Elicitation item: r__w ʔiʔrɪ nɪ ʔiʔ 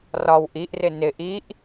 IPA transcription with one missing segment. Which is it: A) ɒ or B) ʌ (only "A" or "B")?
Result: A